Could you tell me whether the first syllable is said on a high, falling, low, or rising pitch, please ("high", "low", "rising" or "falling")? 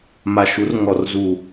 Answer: low